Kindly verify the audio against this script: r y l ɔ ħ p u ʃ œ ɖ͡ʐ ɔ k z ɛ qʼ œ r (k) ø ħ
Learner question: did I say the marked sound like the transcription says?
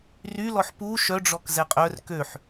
yes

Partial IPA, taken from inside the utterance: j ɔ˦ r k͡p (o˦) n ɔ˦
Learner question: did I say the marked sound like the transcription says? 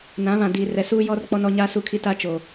no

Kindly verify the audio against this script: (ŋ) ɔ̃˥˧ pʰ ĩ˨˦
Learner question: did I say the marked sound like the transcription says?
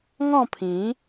yes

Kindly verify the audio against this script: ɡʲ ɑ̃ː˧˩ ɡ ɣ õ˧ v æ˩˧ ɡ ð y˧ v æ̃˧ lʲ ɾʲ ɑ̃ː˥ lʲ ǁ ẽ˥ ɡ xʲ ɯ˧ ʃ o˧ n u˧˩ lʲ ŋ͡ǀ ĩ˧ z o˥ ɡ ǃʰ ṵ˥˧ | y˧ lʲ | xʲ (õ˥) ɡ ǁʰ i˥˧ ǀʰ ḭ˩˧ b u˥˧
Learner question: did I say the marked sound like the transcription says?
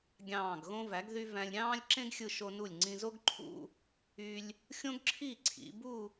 yes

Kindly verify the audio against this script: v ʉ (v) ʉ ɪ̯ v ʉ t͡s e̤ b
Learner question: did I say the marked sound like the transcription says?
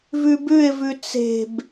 no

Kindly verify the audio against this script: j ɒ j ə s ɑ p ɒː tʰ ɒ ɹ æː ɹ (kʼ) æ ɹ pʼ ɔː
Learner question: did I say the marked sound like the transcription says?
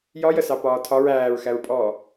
no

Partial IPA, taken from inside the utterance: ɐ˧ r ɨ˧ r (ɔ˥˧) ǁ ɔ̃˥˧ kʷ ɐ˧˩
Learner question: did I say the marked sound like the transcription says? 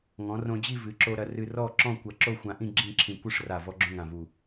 yes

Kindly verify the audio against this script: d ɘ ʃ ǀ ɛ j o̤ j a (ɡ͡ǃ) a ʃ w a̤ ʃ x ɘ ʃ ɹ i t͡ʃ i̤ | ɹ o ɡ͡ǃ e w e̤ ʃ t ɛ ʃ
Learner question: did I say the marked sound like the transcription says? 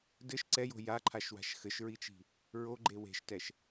no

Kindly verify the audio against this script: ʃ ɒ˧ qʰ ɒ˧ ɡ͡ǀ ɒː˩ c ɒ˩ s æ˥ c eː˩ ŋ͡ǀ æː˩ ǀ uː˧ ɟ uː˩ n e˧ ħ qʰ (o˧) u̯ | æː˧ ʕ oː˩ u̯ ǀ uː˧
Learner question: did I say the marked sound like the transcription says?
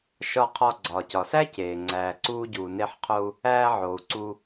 yes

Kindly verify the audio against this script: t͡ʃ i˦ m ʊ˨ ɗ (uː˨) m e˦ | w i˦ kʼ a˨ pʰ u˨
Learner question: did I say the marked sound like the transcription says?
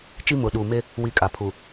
yes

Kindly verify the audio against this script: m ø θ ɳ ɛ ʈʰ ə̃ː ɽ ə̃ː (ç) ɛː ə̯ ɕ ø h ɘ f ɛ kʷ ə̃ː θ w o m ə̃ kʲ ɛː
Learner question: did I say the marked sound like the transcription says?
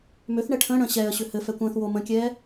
no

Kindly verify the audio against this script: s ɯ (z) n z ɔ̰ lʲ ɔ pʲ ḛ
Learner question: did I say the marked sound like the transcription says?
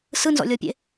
no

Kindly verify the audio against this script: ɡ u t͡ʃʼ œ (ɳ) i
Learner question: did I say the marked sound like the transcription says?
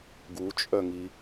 no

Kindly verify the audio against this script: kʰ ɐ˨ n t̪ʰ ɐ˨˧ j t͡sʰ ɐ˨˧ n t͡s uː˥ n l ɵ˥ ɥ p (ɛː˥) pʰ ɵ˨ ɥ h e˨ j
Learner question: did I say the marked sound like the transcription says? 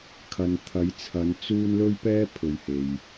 yes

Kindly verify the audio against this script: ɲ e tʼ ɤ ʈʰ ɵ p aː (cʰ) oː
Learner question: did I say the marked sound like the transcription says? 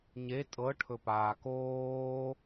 no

